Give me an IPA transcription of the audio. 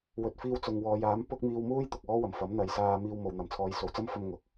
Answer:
w ɵ˨ t̚ f iː˧ w t͡s ʊ˨ ŋ w ɔː˨˧ j aː˨˥ m p ʊ˥ k̚ m iː˧ w m uː˥ j t̪ ʊ˨ k̚ ɔː˥ w ɐ˨˩ m f ɐ˨˥ m n̪ ɐ˨ j s aː˧ m iː˧ w m o˨ w n̪ ɐ˨ m t͡sʰ ɔː˨˧ j s o˨ w t͡s ɐ˥ m f ɐ˧ m ŋ ʊ˨ k̚

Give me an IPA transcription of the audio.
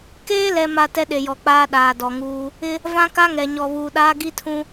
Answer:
k eː˦ l ɛ˨ m a˨ t ɛ˦ ɗ e˨ j ɔ˨ k͡p aː˦ ɗ aː˨ d ɔ˨ ŋ uː˦ | ɪ˦ | v ã˦ k a˦ ŋ ɛ˨ ɲ ɔ˨ β uː˨ ɗ aː˦ ɡ i˦ tʰ ũ˦

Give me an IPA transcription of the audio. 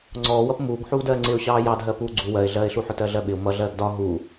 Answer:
ŋ͡ǀ ɔː w ʌ p m uː ɡ ħ uː d ɜː ŋ͡ǀ ɪ ʊ̯ ɕ ɑː j ɑ d ɦ ɜ p uː ɡ͡ǀ u w ɜ ɪ̯ ɮ ɜː ɪ̯ ɬ u ħ ʊ t ɜ ɮ ɜ ɓ ɪ ʊ̯ m ʌ ɮ ɜː ɡ d ɒ ɦ u

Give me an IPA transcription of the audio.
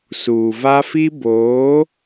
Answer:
s uː˨ v a˦ f i˦ b oː˨˦

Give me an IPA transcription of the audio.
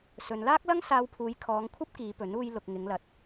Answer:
s ɵ˨ n l aː˥ k̚ l ɐ˥ ŋ s aː˧ w pʰ uː˨˧ j kʰ ɔː˨˧ ŋ kʷʰ ɐ˥ p̚ k iː˨˧ p ɵ˨˥ n uː˧ j l ʊ˨ k̚ ŋ ɪ˨˧ ŋ l ɐ˨ t̚

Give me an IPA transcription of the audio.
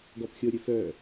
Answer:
ɡ ɔ p xʲ o ɾʲ ɵ f œ

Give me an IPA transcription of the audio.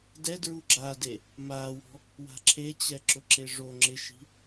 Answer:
d ɛ d ɹ u ɡ͡ǁ a d e | m aː w ɔ̤ | w a̤ ǁʰ e t͡ɕ ɛ ǁ ʊ ǁ e ʐ o ŋ͡ǁ ɪ ʃ i̤

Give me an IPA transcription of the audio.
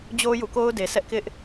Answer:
d͡ʑ o˦ j ṵ˦˨ k o˦ ʊ̯ d e˨ s ɛ˦ ʔ k ɪ˦ ʔ

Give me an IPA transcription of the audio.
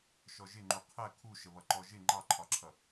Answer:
ʃ ɔ ʒ ɪ ŋ͡ǃ u qʰ ɜ kʰ u ʃ ə β ʌ ǃ ɔ ʒ ɪ ŋ͡ǃ ɑ ǃʰ ɒ ǁʰ ʌ

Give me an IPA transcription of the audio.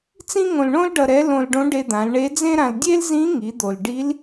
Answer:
t͡s ĩ˥ ŋ õ˧ l ɳ õ˥ l ɖ ʌ˧ ɾ ɛ˧˥ l õ˧ l ɖ õ˧˥ ɖ e˧ d̪ ã˩˧ l ɳ e˧˥ d͡z ẽ˥ ɾ ã˧ l dʲ e˥ l z ĩ˧˥ ŋ i˩˧ d̪ o˩ l ɖ i˧˥ l

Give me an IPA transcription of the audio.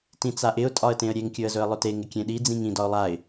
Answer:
t ĩ t͡s a ʔ ɪ ʊ̯ tʼ ɒ ə̯ t ẽ ə̯ ɾʲ e ŋ kʲ ɵ ə̯ z ɵ ə̯ lˠ ɵ t e ŋ ɪ kʲ ẽ ɗ i d͡z ĩ ŋ ĩ d ɒ ʊ̯ lˠ a ɪ̯

